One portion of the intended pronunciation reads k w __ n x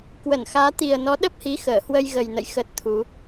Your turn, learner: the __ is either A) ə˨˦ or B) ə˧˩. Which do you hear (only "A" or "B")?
B